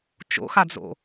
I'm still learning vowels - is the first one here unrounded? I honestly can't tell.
no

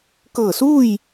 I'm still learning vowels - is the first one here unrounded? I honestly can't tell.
yes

